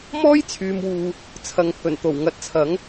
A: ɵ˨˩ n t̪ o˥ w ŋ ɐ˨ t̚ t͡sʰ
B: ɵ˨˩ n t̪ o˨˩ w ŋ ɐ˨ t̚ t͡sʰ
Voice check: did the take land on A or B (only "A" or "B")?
B